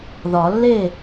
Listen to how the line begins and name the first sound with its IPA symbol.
ð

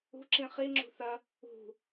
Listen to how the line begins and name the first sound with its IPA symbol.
ṳ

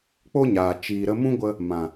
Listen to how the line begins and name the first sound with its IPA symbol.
k͡p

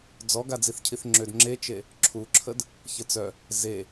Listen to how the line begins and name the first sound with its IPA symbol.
d͡z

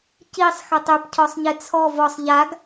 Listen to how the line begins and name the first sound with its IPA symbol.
c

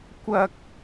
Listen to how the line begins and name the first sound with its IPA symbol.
kʷ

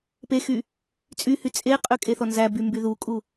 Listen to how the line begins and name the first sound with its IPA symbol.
p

